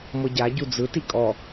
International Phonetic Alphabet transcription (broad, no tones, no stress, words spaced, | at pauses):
mɤɟa ɟud͡zɯ tikʼɔ